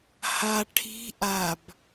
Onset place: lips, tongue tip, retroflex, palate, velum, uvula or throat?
throat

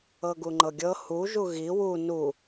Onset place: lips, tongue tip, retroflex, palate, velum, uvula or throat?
velum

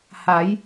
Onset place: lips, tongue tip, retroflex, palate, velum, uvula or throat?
throat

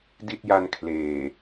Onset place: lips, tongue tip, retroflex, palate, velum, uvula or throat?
tongue tip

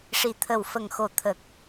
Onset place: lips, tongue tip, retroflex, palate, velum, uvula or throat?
retroflex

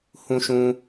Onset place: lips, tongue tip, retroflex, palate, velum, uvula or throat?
throat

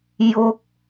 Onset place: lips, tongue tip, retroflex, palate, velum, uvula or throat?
palate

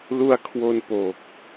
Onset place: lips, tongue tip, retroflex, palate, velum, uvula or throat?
tongue tip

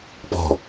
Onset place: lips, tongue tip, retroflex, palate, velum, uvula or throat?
lips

